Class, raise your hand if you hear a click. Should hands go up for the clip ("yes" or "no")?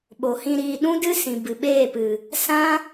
no